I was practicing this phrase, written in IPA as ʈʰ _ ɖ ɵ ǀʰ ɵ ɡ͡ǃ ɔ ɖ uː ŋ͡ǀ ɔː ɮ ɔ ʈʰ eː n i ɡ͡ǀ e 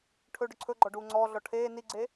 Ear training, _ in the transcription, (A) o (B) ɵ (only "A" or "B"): B